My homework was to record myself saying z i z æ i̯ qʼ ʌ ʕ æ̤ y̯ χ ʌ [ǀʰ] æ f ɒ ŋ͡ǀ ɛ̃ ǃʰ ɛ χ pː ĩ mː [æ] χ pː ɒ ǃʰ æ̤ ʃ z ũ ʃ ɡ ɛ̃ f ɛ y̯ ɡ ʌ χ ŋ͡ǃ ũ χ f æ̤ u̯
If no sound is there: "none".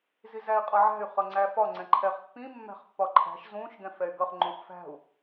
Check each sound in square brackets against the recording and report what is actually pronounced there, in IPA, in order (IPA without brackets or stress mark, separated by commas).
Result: ŋ͡ǀ, æ̤